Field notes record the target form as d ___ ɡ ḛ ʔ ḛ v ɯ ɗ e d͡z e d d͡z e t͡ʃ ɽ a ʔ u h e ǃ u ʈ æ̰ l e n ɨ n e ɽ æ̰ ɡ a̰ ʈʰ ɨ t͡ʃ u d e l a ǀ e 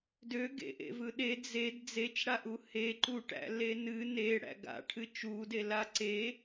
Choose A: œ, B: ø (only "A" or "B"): B